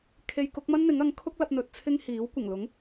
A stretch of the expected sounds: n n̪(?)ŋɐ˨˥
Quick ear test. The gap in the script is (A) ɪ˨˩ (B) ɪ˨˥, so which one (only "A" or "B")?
B